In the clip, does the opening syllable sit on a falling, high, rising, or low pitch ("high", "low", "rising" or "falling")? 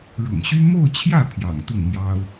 low